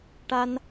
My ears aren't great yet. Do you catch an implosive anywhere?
no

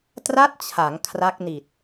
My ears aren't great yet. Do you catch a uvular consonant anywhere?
no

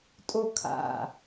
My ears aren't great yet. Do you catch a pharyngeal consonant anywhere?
no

